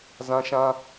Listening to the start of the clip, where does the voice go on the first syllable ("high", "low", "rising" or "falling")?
high